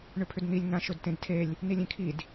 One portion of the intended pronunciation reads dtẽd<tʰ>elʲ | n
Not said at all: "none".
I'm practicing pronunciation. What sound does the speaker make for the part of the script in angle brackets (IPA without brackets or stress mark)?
tʰ